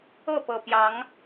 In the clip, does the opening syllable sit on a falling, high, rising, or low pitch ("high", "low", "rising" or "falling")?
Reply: falling